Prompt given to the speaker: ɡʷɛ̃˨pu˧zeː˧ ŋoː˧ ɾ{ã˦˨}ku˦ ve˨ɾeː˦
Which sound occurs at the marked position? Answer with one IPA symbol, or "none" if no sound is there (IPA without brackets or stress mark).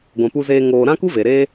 ã˦